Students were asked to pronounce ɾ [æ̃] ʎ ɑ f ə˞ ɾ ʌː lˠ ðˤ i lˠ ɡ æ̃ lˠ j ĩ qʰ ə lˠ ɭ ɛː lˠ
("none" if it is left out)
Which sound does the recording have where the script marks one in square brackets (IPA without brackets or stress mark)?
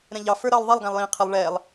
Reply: ɛ̃